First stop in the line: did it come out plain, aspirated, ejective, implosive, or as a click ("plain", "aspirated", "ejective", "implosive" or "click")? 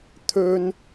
aspirated